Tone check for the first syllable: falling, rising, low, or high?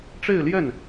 falling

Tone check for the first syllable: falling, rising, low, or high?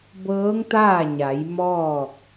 rising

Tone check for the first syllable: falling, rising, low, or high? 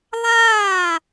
falling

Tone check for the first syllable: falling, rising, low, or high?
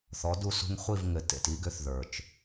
rising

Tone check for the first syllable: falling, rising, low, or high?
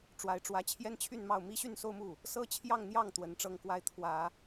rising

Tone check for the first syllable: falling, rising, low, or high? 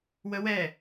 high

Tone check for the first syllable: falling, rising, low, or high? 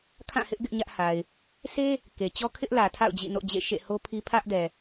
falling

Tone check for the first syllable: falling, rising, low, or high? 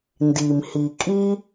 low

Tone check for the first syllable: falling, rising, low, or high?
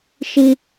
high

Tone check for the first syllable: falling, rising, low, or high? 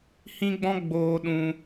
high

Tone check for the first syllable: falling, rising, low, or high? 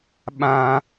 high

